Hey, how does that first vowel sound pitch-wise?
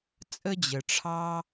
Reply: high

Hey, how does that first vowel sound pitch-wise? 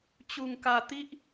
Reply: low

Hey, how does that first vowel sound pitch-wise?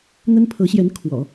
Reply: high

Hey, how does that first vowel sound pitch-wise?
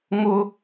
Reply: high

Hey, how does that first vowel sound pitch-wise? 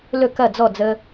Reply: falling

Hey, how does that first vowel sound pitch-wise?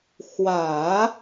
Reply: low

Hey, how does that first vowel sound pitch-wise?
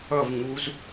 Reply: falling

